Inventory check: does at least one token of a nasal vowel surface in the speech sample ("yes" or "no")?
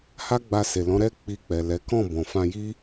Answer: yes